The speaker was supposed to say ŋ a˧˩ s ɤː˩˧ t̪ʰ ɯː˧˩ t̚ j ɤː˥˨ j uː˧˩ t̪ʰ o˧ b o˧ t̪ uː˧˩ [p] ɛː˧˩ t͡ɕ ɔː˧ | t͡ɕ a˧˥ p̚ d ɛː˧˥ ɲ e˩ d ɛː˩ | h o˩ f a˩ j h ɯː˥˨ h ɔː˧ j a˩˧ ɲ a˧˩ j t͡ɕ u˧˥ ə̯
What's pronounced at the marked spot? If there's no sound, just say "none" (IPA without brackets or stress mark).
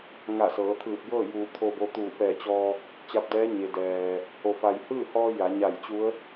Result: p